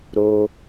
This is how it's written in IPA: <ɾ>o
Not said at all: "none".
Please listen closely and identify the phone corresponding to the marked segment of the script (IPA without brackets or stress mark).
ɾ